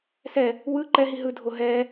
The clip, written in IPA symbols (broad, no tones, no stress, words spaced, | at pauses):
sɛ | wɯ ǃɛɦi ɦɯdʱo ɦɛ